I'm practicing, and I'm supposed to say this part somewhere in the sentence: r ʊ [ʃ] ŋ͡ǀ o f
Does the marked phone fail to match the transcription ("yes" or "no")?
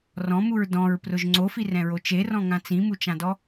yes